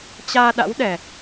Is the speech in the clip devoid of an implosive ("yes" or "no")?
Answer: no